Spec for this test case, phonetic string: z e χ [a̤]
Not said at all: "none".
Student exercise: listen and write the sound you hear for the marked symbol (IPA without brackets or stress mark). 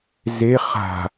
a̤